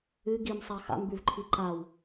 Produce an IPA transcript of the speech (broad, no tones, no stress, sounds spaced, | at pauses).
ɨ ɡ i m sˤ a x a̰ m b ʉ v ǃʰ i ǃ a w